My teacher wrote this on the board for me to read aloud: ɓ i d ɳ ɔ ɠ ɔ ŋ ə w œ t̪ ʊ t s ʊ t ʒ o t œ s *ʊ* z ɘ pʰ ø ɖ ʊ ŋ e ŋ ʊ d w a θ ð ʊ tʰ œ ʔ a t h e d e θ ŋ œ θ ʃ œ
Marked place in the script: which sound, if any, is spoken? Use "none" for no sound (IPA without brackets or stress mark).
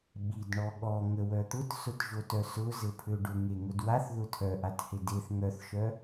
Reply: ʊ